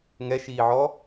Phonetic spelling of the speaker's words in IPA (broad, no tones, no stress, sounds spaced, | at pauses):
ŋ ɛ ʃ iː ʕ ɔ